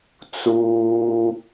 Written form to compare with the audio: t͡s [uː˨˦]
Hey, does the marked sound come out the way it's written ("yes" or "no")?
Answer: no